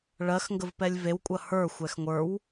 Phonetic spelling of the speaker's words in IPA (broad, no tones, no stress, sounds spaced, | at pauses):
ɭ ɜ x ŋ ɡ ə v p ɛ lʲ v e w kʷʼ ɐ h ə˞ xʷ ɛ x ŋʷ ə˞ w